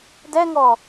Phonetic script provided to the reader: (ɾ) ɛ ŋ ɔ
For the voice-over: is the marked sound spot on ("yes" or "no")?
no